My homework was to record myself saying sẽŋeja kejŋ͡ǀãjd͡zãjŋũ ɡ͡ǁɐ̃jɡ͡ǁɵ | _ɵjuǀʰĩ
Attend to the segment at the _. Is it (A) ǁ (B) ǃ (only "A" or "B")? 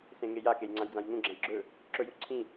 A